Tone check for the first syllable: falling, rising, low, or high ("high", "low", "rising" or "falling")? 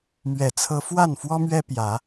low